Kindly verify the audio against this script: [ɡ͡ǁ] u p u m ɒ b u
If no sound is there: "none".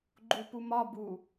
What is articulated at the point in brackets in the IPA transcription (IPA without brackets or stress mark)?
ɡ͡ǃ